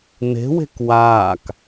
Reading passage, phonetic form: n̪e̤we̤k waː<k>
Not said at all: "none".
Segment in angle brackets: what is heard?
k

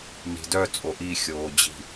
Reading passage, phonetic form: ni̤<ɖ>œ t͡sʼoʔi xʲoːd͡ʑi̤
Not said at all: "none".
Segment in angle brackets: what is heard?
d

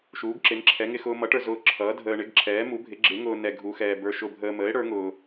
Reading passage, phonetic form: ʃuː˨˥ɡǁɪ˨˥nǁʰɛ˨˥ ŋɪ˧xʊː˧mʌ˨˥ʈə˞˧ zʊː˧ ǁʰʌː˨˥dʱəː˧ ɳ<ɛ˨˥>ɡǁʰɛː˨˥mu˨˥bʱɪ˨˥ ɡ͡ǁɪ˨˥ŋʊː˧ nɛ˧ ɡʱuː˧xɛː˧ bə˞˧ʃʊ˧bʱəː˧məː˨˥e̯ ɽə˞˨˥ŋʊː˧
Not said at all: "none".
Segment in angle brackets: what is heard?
ɪ˨˥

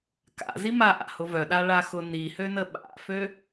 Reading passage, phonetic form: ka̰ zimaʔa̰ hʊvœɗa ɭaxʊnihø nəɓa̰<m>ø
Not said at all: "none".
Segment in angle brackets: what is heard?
f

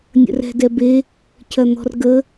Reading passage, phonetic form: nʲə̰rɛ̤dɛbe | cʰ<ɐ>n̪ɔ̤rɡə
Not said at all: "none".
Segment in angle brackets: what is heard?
ɐ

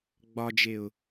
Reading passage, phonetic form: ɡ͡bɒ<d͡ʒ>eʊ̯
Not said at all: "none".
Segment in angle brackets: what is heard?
d͡ʒ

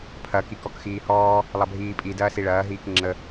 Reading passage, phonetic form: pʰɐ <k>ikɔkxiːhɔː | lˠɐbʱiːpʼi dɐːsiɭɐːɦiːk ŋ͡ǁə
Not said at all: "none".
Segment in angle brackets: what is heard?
k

